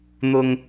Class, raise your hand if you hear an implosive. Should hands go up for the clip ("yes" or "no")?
no